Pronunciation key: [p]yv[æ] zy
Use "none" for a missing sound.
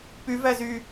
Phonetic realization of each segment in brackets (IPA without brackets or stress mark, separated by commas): p, æ